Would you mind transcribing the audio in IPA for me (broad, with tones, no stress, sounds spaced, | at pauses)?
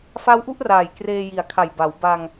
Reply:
f a˦˥ w ʔ u˥˩ ʔ r aː˨˩ j k r eː˧ j i˨˩ a̯ kʰ a˨˩ j b a˩˦ w b a˧ ŋ